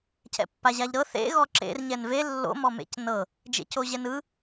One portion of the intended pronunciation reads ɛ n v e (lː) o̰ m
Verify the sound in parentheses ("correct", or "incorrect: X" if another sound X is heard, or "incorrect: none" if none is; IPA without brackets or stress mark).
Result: correct